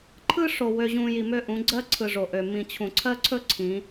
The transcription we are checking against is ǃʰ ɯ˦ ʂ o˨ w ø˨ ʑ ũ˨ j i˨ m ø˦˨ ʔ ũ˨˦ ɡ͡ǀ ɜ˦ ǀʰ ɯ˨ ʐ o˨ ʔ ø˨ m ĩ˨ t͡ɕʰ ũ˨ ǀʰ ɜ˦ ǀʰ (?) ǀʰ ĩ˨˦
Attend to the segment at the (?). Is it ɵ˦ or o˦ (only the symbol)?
ɵ˦